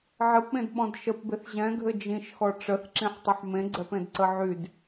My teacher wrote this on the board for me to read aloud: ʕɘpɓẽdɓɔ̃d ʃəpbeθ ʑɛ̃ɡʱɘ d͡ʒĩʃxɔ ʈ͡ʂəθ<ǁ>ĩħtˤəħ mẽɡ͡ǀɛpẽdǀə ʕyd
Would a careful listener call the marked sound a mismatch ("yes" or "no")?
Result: no